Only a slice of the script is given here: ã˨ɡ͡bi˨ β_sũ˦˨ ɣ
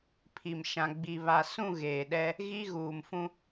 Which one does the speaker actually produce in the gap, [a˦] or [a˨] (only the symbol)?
a˨